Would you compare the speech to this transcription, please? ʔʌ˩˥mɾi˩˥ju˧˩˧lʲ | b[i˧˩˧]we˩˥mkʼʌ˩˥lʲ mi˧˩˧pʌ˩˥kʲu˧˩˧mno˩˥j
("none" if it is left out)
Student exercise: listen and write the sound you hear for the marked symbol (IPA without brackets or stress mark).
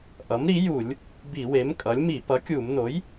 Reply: i˧˩˧